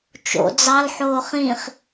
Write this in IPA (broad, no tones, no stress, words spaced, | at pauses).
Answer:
t͡ʃo̰ d͡zɑl ħoːχĩχ